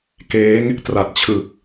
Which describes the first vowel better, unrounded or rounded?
unrounded